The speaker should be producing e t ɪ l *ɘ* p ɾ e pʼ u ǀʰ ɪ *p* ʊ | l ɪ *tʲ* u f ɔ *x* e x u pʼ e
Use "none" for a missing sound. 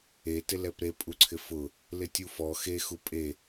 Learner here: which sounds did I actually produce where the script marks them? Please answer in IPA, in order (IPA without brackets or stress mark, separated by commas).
ɛ, f, tʲ, x